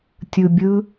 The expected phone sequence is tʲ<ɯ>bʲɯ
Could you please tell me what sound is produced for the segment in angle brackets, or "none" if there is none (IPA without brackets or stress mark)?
ɯ